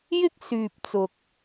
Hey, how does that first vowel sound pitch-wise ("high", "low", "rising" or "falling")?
high